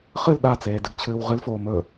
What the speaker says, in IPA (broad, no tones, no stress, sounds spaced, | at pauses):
χ ɨ l ɗ a t͡s eː d ɨ ɡ t͡ɕʰ ɨː w ʁ ɨ l f oː m ɵ